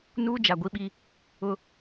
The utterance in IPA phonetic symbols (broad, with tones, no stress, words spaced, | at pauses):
nuː˦d͡ʒa˨ ɡʷi˦ɓi˦ | ʊ˦